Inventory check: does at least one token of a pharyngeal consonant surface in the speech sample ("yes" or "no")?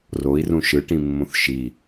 no